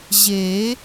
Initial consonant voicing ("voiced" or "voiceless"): voiced